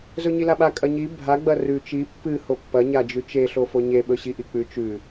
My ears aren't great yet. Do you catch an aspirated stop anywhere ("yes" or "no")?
no